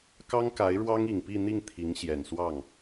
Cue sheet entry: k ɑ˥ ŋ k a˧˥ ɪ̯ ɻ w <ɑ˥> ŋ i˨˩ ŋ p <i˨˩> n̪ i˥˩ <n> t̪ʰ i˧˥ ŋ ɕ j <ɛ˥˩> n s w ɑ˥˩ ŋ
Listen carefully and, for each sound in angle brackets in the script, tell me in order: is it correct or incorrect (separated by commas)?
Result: correct, incorrect, incorrect, incorrect